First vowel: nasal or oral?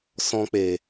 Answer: nasal